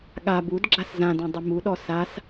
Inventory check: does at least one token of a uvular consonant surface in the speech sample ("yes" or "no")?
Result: no